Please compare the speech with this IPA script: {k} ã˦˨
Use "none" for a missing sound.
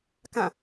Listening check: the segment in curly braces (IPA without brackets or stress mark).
k